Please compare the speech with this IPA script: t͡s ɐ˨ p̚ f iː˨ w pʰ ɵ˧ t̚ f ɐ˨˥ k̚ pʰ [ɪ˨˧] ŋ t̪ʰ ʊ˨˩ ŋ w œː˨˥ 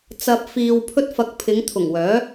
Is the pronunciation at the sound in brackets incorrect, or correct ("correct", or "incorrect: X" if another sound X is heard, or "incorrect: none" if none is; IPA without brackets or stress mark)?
correct